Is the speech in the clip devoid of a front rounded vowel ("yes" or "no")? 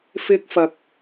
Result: yes